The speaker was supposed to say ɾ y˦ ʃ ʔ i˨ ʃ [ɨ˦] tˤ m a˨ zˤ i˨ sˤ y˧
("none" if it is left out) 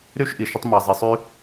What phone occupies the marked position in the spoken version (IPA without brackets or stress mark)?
ə˦